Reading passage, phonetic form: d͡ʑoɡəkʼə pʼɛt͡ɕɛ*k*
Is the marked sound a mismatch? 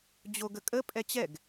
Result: yes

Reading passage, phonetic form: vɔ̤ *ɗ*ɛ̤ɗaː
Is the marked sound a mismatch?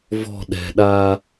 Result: no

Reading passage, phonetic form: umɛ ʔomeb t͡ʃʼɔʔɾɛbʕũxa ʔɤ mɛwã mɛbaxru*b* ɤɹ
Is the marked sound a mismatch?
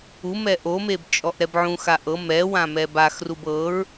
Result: no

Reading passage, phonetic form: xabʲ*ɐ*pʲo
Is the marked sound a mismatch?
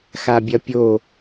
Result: no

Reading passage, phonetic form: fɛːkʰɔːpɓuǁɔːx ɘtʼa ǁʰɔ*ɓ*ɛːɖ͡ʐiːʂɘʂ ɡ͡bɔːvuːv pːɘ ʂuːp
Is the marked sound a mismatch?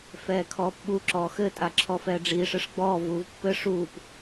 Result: yes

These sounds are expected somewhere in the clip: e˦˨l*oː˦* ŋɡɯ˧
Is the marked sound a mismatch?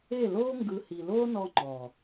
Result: no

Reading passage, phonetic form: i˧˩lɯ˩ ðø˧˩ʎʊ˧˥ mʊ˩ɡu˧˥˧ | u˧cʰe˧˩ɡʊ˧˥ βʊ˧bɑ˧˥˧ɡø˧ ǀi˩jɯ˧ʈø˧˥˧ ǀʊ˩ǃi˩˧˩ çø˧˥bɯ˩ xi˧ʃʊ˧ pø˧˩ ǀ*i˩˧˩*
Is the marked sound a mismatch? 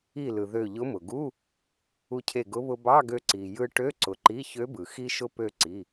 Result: no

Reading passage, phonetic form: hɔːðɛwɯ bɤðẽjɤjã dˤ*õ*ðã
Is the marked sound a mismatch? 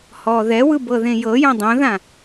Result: no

